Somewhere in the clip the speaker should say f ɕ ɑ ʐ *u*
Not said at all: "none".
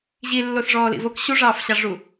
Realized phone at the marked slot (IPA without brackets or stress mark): u